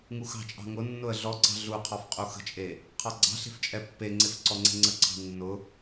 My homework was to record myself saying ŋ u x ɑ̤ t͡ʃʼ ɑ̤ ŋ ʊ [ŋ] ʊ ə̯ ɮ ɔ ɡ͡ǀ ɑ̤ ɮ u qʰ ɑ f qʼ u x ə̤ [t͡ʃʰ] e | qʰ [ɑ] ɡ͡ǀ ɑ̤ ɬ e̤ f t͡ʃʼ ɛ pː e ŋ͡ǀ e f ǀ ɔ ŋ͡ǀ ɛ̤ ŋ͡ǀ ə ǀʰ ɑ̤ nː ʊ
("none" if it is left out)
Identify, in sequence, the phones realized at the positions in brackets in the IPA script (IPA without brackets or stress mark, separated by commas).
nː, t͡ʃʼ, ɑ